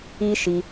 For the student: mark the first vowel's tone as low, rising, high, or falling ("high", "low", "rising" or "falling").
high